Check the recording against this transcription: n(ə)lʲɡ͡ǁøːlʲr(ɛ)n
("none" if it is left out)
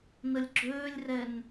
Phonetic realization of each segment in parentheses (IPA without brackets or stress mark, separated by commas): ə, ɛ